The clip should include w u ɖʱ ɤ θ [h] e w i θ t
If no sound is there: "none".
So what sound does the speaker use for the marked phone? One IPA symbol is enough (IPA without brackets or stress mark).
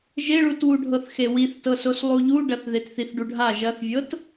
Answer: x